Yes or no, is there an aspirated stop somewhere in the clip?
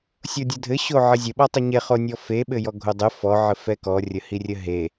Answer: no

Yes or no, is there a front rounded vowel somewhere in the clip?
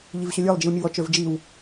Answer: yes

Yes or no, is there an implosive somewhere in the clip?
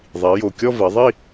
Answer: no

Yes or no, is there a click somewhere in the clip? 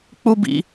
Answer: no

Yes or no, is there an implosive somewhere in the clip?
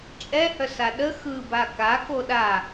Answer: yes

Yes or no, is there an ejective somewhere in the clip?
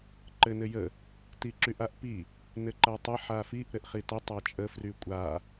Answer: yes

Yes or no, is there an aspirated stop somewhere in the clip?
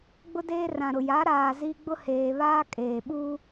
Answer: no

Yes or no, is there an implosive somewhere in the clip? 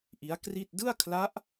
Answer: no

